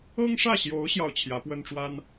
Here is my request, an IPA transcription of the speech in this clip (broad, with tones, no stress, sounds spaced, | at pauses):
ɤ˥ ŋ ʂ ä˥˩ ɕ j o˧˥ ʊ̯ ɕ j ɑ˥˩ ʊ̯ t͡ɕʰ j ä˧˥ p w ə˥ n ʈ͡ʂ w a˥ n